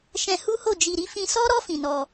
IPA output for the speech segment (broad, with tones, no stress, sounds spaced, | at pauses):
ʃ ɛ̃˧ h u˦ h o˦˨ d͡ʒ i˧ ɾ i˦ f ĩ˧ s ɔ˦ ɾ ɔ˦ f ĩ˧ n ɔ˧